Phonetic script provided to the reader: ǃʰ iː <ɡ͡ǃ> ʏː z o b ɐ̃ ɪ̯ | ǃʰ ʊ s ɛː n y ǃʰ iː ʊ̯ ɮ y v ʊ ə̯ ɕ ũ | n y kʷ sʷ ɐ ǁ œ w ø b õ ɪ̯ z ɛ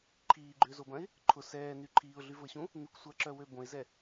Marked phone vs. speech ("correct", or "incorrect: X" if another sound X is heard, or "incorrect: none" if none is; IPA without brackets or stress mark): correct